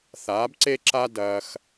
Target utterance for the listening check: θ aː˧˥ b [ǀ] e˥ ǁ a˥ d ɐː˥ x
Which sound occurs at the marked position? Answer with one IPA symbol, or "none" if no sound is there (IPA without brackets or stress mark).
ǀ